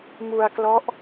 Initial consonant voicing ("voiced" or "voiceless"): voiced